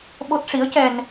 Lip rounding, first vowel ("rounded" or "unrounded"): rounded